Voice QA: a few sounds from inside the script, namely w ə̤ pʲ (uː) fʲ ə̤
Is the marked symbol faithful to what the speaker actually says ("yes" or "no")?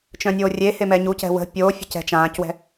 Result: no